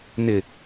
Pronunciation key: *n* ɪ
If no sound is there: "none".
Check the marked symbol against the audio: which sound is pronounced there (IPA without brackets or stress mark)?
n